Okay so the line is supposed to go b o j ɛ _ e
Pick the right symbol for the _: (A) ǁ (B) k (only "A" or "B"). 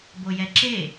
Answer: A